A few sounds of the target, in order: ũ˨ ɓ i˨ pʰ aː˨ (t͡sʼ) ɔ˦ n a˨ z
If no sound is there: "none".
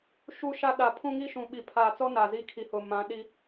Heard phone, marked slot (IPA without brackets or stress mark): t͡s